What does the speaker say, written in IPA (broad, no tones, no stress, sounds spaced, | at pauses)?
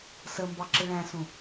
s ə m b ɑ ǁ ɪ ɭ æ̃ s ũ